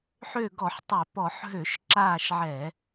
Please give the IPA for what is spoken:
ħ ø˦˨ ɡ ɔ˧˩˧ ħ tˤ ø˧˩˧ p ɔ˧˩˧ ħ ɦ ø˧˩˧ ʃ ǁ aː˦˨ ʃ ʕ ɛ˧˩˧

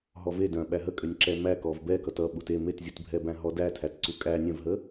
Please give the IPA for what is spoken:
ɦ ɔ v e d œ̃ ɓ æ ɦ ə kʼ ʏ nʲ ǁ ɛ m æ k ɔ v b ɛ k ʌ t ʌ ɓ u t e m e t zʲ u t bʱ ɛ b æ̃ ɦ ɔ d æ tʰ æ t ǀ u kʼ æ nʲ œ̃ v ɦ ə

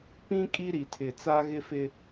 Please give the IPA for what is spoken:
p ĩ˦ kʼ i˦ ɾ i˨ tʰ ɪ˨ t͡s a˦ ɣ ɪ˦ f ɪ˦

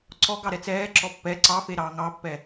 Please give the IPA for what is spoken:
ǀ ɔ ɡ ɑ ɾ ɛ t͡s ɛː ǁ ɔ pː ɛ ǀ ɑ f e ɾ ɑː ŋ ɑ pː ɛ

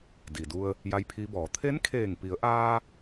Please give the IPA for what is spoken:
d i˩ d u˧ ə̯ | j a˧˥ j pʰ i˧˥ b ɔː˩˧ t̪ʰ e˧˥ n kʰ eː˧˩ ŋ p i˩˧ ə̯ ʔ aː˧

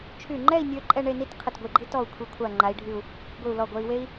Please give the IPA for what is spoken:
t͡ʃʰ y˧˩ ŋ͡ǃ ɛ˥˧ i̯ nʲ ø˧ ǃʼ ɛ˥˧ ɳ e˥˧ n i˥ t qʰ ə˧˩ t ɡʷ i˧˩ ɡ͡ǃ i˥ t ɔ˧˩ u̯ kʷʰ i˩˧ kʷʰ a˧˩ ŋ͡ǃ a˩˧ i̯ ɖʱ y˧˩ u̯ | ɡʷ i˧˩ u̯ l ɔ˧˩ ɡʷ ɛ˧ i̯ w e˥ i̯

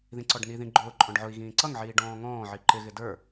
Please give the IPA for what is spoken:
ð ĩ ǀ ɔ ɖ n i ð ĩ ɡ͡ǃ ʊː ǃʼ ɔ̃ ɖ ʕ ʊ i̯ ɣ ĩː ǀ ʌ ŋ ʕ iː ɖ ɔ̃ː ŋ ɔ̃ː ʕ i ǃ ɪ ɣ ɪ d ə˞

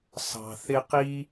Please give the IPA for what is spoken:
s ɑ̤˨ θ ɪ˦ q i˥

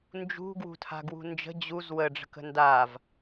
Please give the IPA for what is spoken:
n d͡ʒ ṳ ɡ w ṳ tʰ a̤ ɡ w ṳ n d͡ʒ ə̤ d͡ʑ u z w ə ɖ͡ʐ ə̤ k ə̤ n d a v

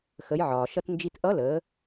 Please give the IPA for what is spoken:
x ə˩˧ j ʕ ɒː˩ ʃ ʌ˧ t n d͡ʒ i˧ t ʔ ʌ˧˥ l əː˩˧

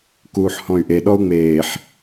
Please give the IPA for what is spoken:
k uː ħ h ɔ̃ y̯ ʔ e ɗ ɔ u̯ ŋ͡m eː ħ

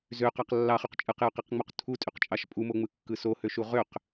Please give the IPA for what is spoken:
z ø q ɑ q lː ɑ χ y q t͡ʃʼ ɯ q j o q e q ŋ͡m u q tʰ u tʼ y q t͡ʃʼ ɑ ʃ pʼ u m o ŋ͡m ɯ kː ɯ s o h ø ʃ u ʁ ø q

